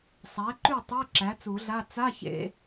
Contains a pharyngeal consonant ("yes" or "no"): no